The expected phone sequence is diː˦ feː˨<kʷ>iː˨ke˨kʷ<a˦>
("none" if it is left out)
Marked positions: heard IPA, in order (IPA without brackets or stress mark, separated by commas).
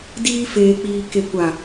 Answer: k͡p, a˨